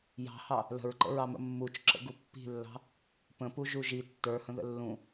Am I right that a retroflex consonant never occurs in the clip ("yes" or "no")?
yes